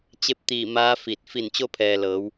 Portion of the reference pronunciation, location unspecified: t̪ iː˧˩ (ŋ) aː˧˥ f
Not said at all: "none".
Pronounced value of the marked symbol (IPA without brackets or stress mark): m